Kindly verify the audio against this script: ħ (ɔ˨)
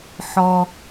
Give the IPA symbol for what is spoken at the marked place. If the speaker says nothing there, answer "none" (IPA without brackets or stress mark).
ɔ˨